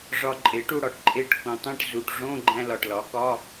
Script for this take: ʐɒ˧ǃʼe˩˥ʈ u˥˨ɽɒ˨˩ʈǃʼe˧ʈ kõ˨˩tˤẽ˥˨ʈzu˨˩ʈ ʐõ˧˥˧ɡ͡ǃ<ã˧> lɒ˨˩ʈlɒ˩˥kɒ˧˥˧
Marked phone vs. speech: incorrect: æ̃˧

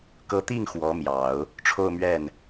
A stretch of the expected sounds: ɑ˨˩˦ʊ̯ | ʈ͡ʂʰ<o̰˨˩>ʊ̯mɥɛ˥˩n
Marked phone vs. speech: incorrect: o˥˧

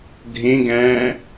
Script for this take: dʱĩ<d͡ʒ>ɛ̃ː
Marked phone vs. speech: incorrect: ɡ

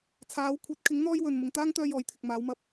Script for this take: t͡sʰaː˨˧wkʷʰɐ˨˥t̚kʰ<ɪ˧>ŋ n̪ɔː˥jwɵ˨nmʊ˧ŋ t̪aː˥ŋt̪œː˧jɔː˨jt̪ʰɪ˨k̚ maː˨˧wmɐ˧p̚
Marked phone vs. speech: incorrect: ɪ˨˥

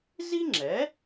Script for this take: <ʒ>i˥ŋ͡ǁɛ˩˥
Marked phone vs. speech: incorrect: z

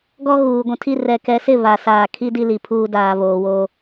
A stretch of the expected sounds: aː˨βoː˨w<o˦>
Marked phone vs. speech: incorrect: oː˦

